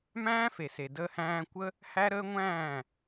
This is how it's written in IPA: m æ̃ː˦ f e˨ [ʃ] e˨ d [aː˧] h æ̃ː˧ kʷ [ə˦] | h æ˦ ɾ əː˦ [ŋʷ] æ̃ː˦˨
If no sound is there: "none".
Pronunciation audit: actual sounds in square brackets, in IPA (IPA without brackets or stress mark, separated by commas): s, əː˧, ə˦, ŋʷ